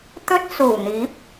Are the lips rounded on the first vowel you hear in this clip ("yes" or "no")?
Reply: yes